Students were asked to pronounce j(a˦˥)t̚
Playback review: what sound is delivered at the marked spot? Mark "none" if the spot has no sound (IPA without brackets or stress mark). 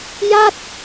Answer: a˥˩